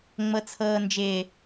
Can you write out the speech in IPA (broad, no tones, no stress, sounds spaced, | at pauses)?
ŋ͡m ɤ t͡sʰ ɤː n d͡ʒ ɪː